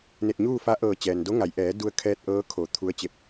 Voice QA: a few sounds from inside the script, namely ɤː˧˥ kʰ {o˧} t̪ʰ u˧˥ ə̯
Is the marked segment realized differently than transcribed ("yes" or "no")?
yes